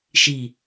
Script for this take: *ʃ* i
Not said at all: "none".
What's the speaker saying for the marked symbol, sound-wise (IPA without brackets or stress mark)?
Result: ʃ